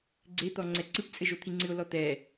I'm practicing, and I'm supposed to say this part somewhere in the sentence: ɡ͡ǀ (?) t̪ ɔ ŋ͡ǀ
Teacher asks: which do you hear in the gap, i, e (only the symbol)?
e